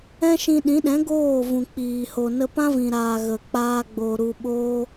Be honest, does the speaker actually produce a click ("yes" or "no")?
no